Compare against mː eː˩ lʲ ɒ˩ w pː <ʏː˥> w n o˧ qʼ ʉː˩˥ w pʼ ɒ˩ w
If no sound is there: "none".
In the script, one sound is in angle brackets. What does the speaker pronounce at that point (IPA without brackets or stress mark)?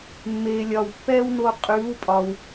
ɛː˥